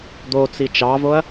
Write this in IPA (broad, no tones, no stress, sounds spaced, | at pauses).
d̪ o t͡s i t͡ʃ ɑ v o ɐ̯